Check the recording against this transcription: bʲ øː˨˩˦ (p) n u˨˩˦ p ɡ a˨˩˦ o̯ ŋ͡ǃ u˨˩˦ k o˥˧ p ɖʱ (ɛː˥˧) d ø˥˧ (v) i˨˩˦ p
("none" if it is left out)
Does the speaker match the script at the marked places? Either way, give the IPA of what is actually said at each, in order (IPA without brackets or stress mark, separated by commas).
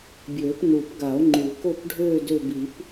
p, øː˥˧, b